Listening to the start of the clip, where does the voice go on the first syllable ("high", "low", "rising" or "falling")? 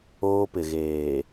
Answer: high